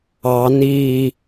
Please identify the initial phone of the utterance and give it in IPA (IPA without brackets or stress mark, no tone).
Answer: ɑ